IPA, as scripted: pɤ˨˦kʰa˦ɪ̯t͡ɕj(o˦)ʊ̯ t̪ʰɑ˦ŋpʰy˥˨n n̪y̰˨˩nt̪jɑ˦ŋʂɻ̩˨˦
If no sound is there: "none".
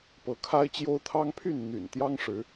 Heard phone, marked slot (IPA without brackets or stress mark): o˦